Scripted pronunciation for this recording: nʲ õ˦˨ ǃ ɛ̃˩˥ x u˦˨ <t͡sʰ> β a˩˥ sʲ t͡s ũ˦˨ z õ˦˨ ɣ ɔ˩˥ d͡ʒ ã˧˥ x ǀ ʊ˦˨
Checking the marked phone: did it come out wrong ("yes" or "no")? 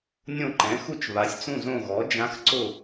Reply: yes